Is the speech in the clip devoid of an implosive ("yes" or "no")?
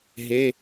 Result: yes